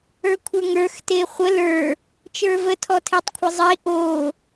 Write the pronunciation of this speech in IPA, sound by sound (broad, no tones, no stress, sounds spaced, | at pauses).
ə˞ kʷʰ ə˞ ŋ ə˞ x t e χʷ ə l ə˞ | t͡ʃ ə˞ v ə tʰ ɔ tʰ e tˤ kʷʰ e zˤ i ʔ o